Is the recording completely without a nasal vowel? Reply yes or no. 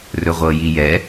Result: yes